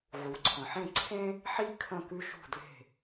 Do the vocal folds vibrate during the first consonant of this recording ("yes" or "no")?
yes